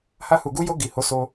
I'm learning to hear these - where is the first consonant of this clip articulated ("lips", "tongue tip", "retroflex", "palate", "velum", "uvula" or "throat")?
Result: throat